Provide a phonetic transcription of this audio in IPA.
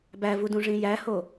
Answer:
bævudũʐĩ jæho

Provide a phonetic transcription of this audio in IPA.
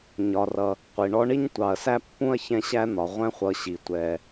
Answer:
ɲɒ˨rʌ˨ | qʷi˩ɳɔ˦ɳi˥ɲ tʷɑ˨ɐ̯sæ˥pːũ˥ɐ̯ çɛ̃˥ɕæ˥n̪ɒ˩ ʁʷɛ̃˦χʷʌ˨ɕi˩ tʷɛ˩

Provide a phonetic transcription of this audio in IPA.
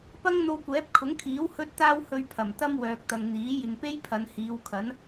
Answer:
pɐ˥ŋn̪o˧wkʷɛː˨˥p̚ kʰʊ˨˥ŋkʰiː˨˥w hɵ˥t̚t̪aː˥w hɵ˧ɥpʰɐ˨˩m t̪ɐ˥m wœː˨k̚t̪ɐ˨ŋn̪iː˨˥ jɪ˨ŋpe˥jpʰɐ˨˧n hiː˨˧wkʰɐ˨˥n

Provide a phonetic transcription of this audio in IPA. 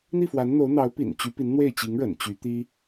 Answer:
n̪i˥˩fwa˧˥nn̪o˧˥ʊ̯n̪ɑ˧˥ʊ̯ pḭ˨˩nt͡ɕy˧˥pi˧˥n n̪we˥˩ɪ̯t͡ɕi˧˥ŋɻə̰˨˩n t͡ɕy˧˥t̪i˥

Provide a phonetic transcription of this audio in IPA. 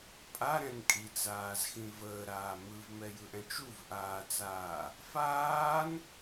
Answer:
pʼaɾɛ̃n kʼit͡saːzxĩ vəːɾaː mɯvmɛjɯʔɛ̃t͡ʃ uvʔaːt͡saː | faːn

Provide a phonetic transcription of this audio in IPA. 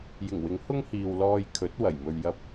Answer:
jɪ˨˩ŋwɪ˨˥ŋhʊ˥ŋhiː˨w lɔː˧jkʰɵ˨˥t̚ wɐ˨˩jmɵ˧ɥjɐ˥p̚

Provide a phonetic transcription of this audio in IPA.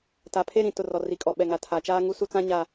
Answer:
ta˨pʰe˦ɾĩ˨tʊ˨ rɔ˨ri˨kʼɔ˨ ɓɛ˨ŋa˨tʰa˨t͡ʃaː˦ ŋu˦su˦t͡sã˦ ɲa˨

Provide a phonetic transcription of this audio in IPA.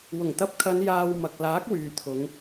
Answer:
wʊ˨˩ŋt̪ɐ˧p̚kʰɐ˨˧n jaː˨w mɐ˨k̚laː˨˥k̚wyː˨t̪ʰʊ˨˧ŋ

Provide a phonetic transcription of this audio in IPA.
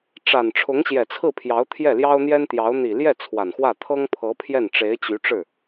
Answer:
ʈ͡ʂa˨˩n ʈ͡ʂʰʊ˧˥ŋɕjɛ˨˩t͡sʰɹ̩˥˩pʰjɑ˧˥ʊ̯ t̪ʰjɛ˥˩ljɑ˥ʊ̯n̪jɛ˥n t̪jɑ˧˥ʊ̯ n̪i˨˩ ljɛ˥˩ t͡sʰwa˨˩nxwä˥˩ t̪ʰɤ˥ŋpʰɤ˧˥ pʰjɛ˥˩nʈ͡ʂe˧˥ɪ̯t͡ɕy˧˥ʈ͡ʂɻ̩˥˩

